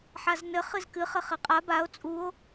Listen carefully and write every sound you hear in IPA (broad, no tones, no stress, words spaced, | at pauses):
ħaznɘ χɨzkɨ χɘχɘqʼa bao̯ t͡sʼuo̯